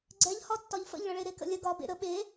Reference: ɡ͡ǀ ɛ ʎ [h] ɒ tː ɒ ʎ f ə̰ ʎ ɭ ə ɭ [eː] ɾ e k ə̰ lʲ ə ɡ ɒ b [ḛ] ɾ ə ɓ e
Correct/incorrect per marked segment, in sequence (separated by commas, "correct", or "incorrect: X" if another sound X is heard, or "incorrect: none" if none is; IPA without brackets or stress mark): correct, incorrect: e, correct